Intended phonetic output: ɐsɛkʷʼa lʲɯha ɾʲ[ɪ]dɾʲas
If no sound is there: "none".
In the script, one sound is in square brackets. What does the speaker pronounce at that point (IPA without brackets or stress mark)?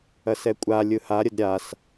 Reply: ə